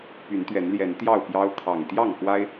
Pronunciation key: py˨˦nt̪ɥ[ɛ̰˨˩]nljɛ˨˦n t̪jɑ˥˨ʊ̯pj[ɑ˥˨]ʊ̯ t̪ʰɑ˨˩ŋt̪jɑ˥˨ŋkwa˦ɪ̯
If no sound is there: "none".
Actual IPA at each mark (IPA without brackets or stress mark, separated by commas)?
ɛ˨˦, ɑ˦